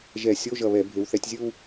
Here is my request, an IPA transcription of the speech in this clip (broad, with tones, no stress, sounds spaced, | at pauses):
ʒ ɛ˧˩˧ sʲ o˧˥˧ ʒ ʌ˧˩ β ɛ˧˩˧ bʱ e˩˧ w θ ɛ˩˧ tʲ zʲ ɯ˥˧ w